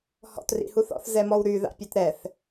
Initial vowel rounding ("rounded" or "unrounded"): rounded